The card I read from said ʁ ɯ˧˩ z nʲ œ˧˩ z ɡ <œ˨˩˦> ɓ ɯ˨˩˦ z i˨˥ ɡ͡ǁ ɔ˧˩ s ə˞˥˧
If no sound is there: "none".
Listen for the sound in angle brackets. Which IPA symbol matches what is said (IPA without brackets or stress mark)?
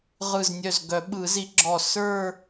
œ˨˩˦